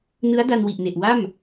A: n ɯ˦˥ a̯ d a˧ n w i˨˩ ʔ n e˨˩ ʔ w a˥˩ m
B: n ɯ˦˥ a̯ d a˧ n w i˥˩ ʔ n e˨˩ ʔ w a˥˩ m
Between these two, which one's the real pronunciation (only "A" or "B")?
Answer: A